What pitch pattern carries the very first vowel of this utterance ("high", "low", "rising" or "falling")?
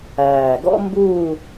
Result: low